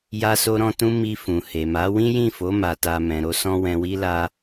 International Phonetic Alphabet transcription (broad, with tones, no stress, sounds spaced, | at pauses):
j a˧ s o˧ ɾ ɔ̃˧ t ũ˧ m i˧ f ũ˨ h e˨ m a˨˦ w ĩ˦ j ĩ˦˨ f o˨˦ m a˧ t a˧ m ɛ̃˨ ɾ o˧ s ɔ̃˧ w ɛ̃˨ w i˧ l a˧